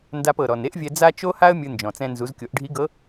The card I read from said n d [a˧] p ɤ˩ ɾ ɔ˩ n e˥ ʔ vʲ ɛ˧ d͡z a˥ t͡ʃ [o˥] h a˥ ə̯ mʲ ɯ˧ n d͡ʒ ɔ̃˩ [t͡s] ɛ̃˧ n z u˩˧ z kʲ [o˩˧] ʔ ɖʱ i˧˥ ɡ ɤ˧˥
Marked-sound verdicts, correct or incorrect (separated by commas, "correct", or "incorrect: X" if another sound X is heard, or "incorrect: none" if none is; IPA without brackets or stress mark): correct, correct, correct, correct